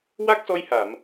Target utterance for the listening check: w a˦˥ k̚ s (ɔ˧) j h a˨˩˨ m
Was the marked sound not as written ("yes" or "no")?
no